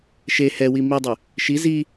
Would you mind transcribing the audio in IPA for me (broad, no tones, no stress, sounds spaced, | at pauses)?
ʃ e h ɛ w i m i dˤ y | ʃ i z i